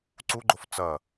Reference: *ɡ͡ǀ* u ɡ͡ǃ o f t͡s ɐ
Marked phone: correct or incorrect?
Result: incorrect